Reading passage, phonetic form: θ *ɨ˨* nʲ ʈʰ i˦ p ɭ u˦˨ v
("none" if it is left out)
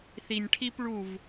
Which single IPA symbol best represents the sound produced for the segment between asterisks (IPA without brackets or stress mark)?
i˨